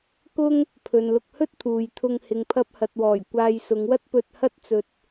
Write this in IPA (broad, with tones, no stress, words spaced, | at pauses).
kʊ˥ŋ | pʰɵ˨nlʊ˧k̚hɵ˥t̚ t̪ʰuː˨jt̪ʰʊ˧ŋ hɪ˨ŋpʰɐ˧p̚hɐ˨t̚wɔː˨˩j kʷaː˧jsʊ˨˧ŋwɐ˥t̚ pɵ˧t̚hɐ˥t̚t͡sɵ˧t̚